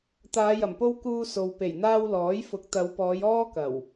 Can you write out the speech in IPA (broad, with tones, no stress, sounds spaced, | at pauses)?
t̪ aː˨˧ j ɐ˨˩ m p o˥ w k uː˥ s o˨ w p e˨˩ j n̪ aː˥ w l ɔː˨˥ j f ʊ˨˥ k̚ t̪ ɐ˨˧ w p ɔː˨˧ j ɔː˥ k ɐ˨˩ w